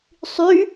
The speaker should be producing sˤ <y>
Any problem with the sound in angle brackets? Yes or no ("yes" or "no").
no